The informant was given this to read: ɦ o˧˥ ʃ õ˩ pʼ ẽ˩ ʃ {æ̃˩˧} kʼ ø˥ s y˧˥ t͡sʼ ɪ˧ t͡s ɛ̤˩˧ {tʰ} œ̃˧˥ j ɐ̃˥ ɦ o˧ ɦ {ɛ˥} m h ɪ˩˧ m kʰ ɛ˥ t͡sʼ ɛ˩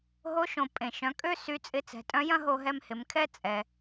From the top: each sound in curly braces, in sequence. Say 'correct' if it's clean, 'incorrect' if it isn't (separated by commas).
incorrect, incorrect, incorrect